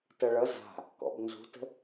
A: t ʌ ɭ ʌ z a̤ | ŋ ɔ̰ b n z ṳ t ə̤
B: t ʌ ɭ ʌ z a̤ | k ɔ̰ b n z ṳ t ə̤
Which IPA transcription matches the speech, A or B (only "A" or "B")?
B